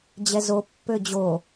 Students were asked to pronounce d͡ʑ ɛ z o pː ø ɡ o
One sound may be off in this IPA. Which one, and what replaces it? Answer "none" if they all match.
ɡ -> d͡ʑ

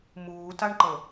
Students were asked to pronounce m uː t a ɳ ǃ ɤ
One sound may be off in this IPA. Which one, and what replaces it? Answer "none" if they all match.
none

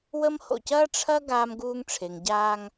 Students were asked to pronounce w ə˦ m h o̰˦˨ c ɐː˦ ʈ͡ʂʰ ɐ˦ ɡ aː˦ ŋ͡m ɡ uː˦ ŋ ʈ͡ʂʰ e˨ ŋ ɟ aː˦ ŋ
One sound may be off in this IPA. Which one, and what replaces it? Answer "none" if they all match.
ŋ͡m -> m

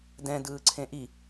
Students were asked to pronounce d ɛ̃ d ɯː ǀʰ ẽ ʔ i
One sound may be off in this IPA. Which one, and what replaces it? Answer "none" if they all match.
none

